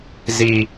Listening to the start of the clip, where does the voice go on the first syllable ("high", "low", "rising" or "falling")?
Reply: low